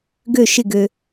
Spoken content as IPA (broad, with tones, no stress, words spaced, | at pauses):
ɡø˥˨ʃɪ˥˨ɡø˨